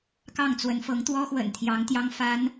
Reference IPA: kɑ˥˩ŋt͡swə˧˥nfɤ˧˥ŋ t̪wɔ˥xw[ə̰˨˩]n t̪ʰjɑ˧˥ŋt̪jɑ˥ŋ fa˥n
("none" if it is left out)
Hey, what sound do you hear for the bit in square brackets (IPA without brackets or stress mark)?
ə̰˨˩